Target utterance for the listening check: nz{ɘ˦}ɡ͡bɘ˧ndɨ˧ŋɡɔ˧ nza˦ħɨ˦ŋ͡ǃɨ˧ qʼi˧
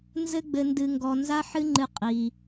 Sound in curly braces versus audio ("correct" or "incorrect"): correct